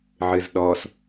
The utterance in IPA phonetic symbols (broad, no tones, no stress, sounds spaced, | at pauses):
ʕ ɨ z ɗ ɔ s